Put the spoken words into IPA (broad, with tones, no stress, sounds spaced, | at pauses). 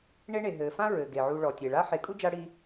ɳ e˦ ɳ e˩ ɦ ɘː˩ f ã˥ ɹ ɘ˩ ɡ e˩ ʕ u˨ ɭ ɔ˩ tʲ e˩ ɭ a˦ ħ e˨ kʼ u˥ d͡ʒ a˦ ɽ i˦